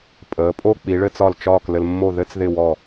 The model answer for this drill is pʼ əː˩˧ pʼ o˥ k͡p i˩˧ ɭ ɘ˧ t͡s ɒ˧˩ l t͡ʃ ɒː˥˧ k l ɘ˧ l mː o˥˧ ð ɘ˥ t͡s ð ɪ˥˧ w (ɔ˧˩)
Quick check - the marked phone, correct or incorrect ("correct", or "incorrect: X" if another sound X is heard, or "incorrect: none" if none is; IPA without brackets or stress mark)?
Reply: correct